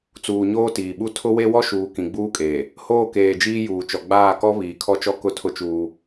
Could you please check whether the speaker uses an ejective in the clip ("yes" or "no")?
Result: yes